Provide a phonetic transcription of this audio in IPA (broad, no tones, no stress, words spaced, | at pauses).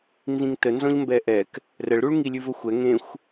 nzĩŋtənzɔ̃ʎ mbɛʔɛk | rəɭɾuɭ ŋilʲʉvəxʷɛ ŋẽxʷ